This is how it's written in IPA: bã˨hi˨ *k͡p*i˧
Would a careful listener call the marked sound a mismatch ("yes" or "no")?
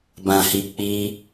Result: no